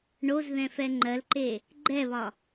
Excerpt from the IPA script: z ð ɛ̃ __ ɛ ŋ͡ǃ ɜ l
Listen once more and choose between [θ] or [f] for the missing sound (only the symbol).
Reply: f